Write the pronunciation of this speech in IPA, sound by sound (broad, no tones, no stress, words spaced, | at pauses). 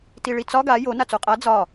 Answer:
tiɭit͡sɒ ɡa jo nat͡soqʼa d͡zɒ